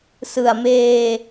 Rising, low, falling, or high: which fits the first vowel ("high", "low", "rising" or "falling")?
low